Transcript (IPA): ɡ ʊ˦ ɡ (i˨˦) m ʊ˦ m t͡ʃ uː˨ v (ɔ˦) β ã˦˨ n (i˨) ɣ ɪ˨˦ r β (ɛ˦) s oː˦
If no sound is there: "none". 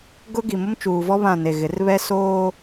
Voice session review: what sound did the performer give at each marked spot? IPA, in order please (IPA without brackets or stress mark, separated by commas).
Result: i˨, ɔ˦, e˨, ɛ˦